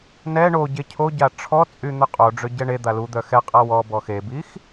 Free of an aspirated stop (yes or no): no